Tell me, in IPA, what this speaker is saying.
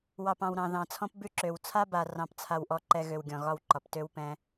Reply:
wɑ˨pɑ̃˨w ɾɑ̃˨ðɑ̃˨t͡sʰɔ̃˦p bʉ˦ǁø˨w t͡sʰa˦ba˨ rɑ̃˦pt͡sʰa˦wʔɔ˦ǃɛ˦ ɣø˨wɡʲɔ̃˨ɣɒ˦wǃɒ˨p tø˦wpɛ̃˦

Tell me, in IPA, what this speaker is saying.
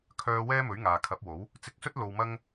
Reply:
kʰœː˥ wɛː˥mɵ˨˥ɥ ŋaː˨kʰɐ˨˥p̚wo˨˥w | t͡sɪ˧k̚sɵ˥t̚ lo˧wmɐ˥ŋ

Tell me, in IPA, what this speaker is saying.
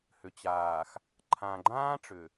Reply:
hʏ˨t͡ɕaː˨x | ǃʰã˨ɡ͡ǃãː˦ ʈ͡ʂʏ˨

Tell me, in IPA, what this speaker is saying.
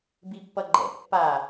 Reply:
bipːʌɡ͡ǃɛ̰ pːa

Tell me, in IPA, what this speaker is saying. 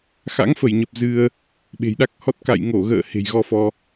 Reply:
xa̰˧˥ŋfə˧˩jɲə˨˩p̚ zɨ˧ə̯ | ɓe̤˨˩jɗa˦˥k̚hɔ˦˥t̚ ka̰˧˨jŋo˧˩ɣə̰ː˧˨ he̤˨˩jɣɔ˧fɔ˧

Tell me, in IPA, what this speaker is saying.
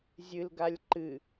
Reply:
zʲɨlɡalʲ ǃɨ

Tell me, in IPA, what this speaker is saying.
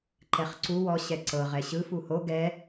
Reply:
ǃɛχǀu wɔ ɕɛǀɤʁɛ ɕɯ fuho ɡɛ

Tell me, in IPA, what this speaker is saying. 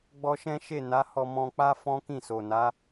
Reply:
ɡ͡bɔ˧ʃɛ̃˦ʃe˦˨ na˨˦hɔ˧mɔ̃˧k͡pa˦ fɔ̃˦kĩ˦˨so˨na˨˦

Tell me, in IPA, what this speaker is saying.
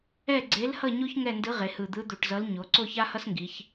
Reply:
ɛ˥˧ɡ͡ǀe˧˥lhʌ˥˧ɲo˥ç ŋɛ˥˧ndɯ˧˥ʁe˩˧ hɯ˨˩d̪ɯ˧˥d̪u˨˩ʈzʌ˧˥l ɲo˩˧ ǀo˥˧ça˥hʌ˥sŋɡi˩˧ç

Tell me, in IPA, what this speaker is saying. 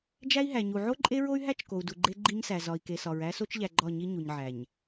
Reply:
d͡ʒæ˦i̯ɦæ˨ɲu˨ ʕo˦ǃʼe˦ɹo˦y̯ɦæ˦t͡ʃ ko˨u̯du˨ɡ͡ǃe˦ ɡ͡ǃi˦ɲsæ˨ zɒ˨i̯ke˨sɒ˨ɹ æ˦so˦t͡ʃʎæ˨ ɡ͡ǃɒ˦˨ɲi˦ ɲu˨ɲʕæ˨ɲ

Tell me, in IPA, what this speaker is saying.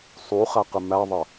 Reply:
sˤuχæqɪ mæðˤə

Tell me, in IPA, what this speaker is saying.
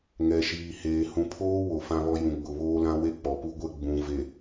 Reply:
ŋɛ˨ʃiː˨heː˨ hũ˨pʰoː˦ wo˨fã˦βɔ˦ jũ˨ɡ͡bʊ˨βoː˦lã˦ we˦k͡pɔ˨pu˦ɡʷɛ˦ ɡ͡bũ˨ve˨

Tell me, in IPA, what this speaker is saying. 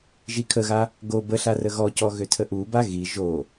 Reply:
ʒikʰəɣa | ɡo bəɬa rəɣɔcɔ ɣøtʰəʔuba ɣi ʒo

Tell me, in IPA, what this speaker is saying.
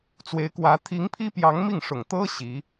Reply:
t͡swe˧˥ɪ̯kwä˧˥ t̪ʰi˧˥ŋpʰi˥ pjɑ˧˥ŋmi˥˩ŋʂʊ˨˩ŋ t̪ɤ˥ ɕi˧˥

